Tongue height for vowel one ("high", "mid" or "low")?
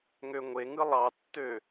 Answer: mid